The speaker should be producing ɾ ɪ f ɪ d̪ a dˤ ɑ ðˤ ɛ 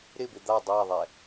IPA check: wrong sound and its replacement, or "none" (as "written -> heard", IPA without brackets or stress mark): f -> b